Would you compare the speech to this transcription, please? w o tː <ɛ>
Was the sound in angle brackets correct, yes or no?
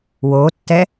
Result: yes